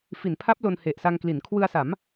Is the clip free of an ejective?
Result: yes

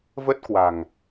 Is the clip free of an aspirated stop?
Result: yes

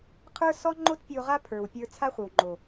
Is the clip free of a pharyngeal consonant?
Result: yes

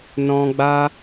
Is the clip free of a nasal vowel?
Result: no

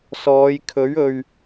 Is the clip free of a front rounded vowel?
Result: yes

